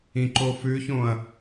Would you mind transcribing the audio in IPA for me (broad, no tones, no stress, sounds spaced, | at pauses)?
ĩ ǃ o f ʉ ç õ ɐ̯